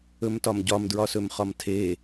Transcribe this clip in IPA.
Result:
ɵ m t ɒ m ɟ ɒ m d ɹ ɒ s ɵ m χ ɒ m tʰ eː

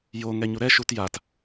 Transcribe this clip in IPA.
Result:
j o ŋ ɛ ɲ u ɾ ɛ ʃ u t j a t

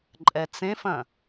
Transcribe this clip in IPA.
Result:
ǃʼ ɛ t͡s ẽ f ɐ̃

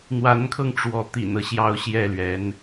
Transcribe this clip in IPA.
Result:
n̪ w a˧˥ n kʰ ɤ˧ ŋ ʈ͡ʂ w ɔ˧˥ t̪ ḭ˨˩ n ɤ˦ ɕ j ɑ˥˧ ʊ̯ ɕ j ɛ˥˩ l ɥ ɛ˧˥ n

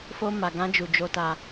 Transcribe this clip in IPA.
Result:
f o˧ m a˨ ɡ ã˧ d͡ʒ u˨ d͡ʒ o˧ t a˧

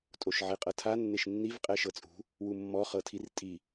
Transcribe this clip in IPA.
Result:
tʼ o ʃ ʕ e qʼ ɤ tʰ a nː e ʃ nː i v qʼ ɛ ʃ ɤ t͡sʼ ṳ | w u mː ɔ χ ɤ tʰ i r tʼ i

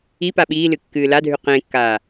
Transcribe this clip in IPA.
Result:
i p a ɓ iː l ɨ kː ɨː l a dʱ ʉ q ẽ kː aː

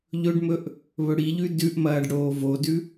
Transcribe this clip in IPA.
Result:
ʎ ɵ ɖ m ɵ ʔ | β ɵ ɽ i ʎ ʉ d ʉ ʔ m ɐː ɖ ɽ oː v o d ʉ

